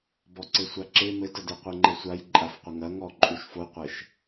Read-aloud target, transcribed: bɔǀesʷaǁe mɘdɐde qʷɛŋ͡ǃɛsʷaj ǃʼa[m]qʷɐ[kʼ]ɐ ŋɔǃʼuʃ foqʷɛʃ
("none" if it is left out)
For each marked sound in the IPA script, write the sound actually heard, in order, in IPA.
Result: f, ŋ

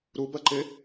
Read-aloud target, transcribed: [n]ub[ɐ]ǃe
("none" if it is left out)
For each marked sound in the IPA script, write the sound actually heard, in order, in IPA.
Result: ɾ, ɐ

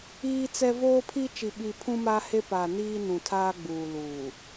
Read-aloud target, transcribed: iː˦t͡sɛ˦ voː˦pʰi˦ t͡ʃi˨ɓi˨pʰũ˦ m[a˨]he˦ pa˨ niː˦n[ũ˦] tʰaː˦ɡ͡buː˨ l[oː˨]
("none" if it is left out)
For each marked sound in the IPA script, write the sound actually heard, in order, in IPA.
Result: a˦, ũ˨, uː˨

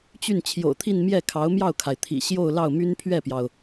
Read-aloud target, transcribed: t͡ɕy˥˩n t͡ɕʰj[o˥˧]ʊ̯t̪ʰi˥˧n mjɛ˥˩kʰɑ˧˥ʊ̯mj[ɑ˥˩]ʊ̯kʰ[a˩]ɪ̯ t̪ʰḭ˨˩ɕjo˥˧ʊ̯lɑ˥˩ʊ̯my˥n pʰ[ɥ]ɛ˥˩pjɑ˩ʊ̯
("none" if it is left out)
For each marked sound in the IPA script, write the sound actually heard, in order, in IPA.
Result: o̰˨˩, ɑ˥˩, a˩, ɥ

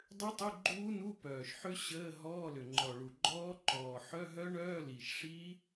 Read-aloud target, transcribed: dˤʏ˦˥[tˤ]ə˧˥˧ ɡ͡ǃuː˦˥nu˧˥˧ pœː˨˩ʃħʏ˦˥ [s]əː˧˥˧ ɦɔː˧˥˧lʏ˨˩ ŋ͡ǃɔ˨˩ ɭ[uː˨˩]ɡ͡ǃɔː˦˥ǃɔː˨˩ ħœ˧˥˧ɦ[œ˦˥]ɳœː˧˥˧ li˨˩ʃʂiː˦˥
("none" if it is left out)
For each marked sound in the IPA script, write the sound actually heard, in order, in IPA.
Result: tˤ, ɕ, u˨˩, œ˦˥

